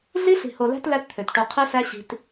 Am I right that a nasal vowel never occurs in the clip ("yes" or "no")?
yes